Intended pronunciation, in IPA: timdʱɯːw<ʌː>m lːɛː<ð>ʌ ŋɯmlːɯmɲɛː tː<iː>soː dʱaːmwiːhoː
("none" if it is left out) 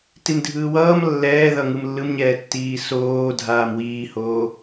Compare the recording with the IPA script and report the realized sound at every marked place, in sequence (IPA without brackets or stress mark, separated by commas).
ʌː, ð, iː